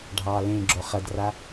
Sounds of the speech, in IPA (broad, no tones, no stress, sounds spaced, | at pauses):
ɖʱ ɑː l ẽ ɡ͡ǁ o χ ɐ d r a